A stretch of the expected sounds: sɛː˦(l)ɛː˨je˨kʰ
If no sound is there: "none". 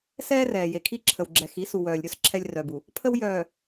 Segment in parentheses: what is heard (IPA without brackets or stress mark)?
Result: r